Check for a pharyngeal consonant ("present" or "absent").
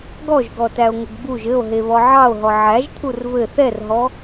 present